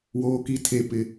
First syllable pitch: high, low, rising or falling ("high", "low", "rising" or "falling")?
high